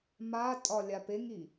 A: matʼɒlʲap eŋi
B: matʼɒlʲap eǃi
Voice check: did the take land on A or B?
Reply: A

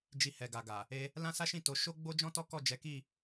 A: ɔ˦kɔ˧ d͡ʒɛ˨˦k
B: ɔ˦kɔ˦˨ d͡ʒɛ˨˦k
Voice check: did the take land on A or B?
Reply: B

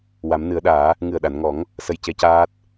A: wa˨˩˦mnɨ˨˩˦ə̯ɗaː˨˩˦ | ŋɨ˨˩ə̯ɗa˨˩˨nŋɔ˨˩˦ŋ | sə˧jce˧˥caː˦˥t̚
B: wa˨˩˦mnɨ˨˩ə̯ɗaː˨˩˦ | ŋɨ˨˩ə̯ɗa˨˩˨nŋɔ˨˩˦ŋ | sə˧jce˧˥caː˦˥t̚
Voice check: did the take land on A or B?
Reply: A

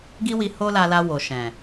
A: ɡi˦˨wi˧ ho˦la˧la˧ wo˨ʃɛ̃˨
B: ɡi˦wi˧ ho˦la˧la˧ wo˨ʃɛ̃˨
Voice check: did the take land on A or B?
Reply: B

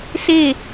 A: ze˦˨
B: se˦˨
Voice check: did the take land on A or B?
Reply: B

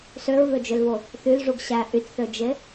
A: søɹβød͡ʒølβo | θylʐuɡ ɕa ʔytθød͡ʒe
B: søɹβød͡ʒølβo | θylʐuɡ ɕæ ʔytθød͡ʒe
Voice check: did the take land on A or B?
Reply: B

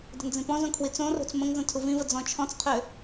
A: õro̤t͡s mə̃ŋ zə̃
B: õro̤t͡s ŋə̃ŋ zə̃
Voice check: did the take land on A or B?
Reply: A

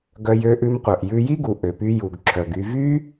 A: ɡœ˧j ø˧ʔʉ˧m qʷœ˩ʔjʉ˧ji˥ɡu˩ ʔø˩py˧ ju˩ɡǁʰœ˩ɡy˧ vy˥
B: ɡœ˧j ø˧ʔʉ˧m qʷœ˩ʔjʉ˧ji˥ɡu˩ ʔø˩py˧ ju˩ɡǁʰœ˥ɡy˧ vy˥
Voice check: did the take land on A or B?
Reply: A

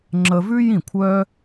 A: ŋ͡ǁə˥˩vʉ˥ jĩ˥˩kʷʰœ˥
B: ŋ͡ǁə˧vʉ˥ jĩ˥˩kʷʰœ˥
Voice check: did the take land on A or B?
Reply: B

